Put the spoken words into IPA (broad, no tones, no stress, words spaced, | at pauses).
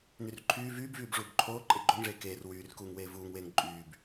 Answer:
nyrǃʰyː vyːbvyːb ʐuːbǃʰoː ǃʼeɡ͡ǃoŋʐeː keːr wyːrkuːŋ weːvuːŋweːŋ ǃʼyːb